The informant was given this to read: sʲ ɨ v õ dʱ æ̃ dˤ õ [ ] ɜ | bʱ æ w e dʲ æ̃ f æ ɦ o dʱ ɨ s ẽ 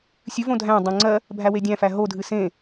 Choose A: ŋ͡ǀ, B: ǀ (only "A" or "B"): A